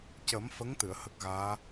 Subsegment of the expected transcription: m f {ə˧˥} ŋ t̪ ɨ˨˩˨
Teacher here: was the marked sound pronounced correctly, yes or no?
yes